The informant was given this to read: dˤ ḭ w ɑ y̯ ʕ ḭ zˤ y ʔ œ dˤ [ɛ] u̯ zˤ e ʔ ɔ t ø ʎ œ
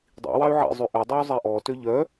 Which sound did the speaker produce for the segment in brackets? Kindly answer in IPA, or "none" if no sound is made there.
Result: ɛ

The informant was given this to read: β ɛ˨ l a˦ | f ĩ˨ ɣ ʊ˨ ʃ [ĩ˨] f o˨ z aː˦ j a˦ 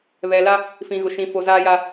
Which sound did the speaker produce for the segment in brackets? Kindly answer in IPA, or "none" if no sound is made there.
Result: ĩ˨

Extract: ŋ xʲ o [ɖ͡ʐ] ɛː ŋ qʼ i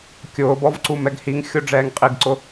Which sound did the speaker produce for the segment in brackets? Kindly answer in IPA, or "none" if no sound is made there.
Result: ɖ͡ʐ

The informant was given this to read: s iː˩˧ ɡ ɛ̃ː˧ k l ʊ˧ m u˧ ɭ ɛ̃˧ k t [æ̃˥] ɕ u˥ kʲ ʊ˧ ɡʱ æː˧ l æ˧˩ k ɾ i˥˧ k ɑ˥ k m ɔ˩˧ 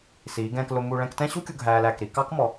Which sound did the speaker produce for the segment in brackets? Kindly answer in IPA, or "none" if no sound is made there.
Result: ɛ̃˥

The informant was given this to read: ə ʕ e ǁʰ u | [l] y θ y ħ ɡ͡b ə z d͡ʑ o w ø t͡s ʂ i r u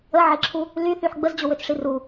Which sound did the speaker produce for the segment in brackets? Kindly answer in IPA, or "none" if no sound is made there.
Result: l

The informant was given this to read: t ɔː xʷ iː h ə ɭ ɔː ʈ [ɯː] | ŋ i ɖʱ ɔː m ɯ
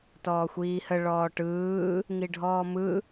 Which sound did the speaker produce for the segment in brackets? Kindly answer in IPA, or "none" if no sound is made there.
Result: ɯː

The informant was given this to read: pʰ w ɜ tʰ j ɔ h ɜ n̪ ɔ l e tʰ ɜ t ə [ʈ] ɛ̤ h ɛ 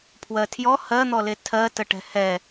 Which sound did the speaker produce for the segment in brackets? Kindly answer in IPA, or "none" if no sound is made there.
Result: ʈ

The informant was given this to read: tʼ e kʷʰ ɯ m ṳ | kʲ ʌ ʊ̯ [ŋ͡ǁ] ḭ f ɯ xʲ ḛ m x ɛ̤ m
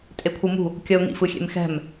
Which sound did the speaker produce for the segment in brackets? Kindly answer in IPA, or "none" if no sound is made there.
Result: ŋ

